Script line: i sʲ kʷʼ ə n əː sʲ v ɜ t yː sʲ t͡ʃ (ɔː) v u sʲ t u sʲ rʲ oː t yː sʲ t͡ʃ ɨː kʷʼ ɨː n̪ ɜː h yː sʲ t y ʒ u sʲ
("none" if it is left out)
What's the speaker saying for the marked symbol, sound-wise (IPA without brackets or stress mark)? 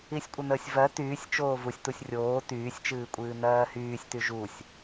oː